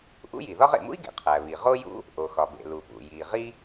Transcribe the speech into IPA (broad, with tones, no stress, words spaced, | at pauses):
ʔṵ˥ji˩ðɒ˥ʁ ḛ˩mṵ˥i̯ɡḛ˩ qʰæ˩ βi˩ ʁo˥jṵ˥ | ʔo˩xɒ˩bḛ˩ lu˩pṵ˩ ji˩ ʁi˥